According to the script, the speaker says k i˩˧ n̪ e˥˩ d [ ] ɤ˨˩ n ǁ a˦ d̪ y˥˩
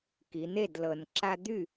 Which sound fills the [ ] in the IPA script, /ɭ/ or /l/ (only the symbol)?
l